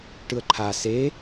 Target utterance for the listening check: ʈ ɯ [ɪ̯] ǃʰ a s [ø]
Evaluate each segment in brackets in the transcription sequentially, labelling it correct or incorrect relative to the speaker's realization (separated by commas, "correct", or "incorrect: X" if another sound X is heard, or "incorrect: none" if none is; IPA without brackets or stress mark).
incorrect: ə̯, incorrect: e